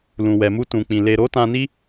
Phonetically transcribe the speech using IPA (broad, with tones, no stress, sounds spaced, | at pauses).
l ũ˨ w ɛ˨ m u˧ t ũ˨ k͡p ĩ˨ l e˨ ɾ o˨˦ t ã˧ n i˦